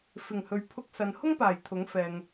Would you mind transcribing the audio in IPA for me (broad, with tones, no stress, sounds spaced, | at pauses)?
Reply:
f ɪ˨˩ ŋ h ɵ˨ ɥ pʰ ʊ˧ k̚ s ɐ˨ n h ʊ˥ ŋ p aː˨˩ j t̪ʰ ʊ˨˥ ŋ f ɛː˨ ŋ